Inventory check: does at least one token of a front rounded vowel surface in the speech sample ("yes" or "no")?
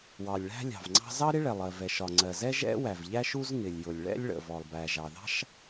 no